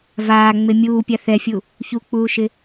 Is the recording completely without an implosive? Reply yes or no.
yes